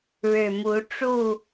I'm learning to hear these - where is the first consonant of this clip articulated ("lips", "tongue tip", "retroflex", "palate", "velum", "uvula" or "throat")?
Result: retroflex